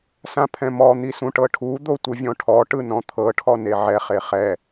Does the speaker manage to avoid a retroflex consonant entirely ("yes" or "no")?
no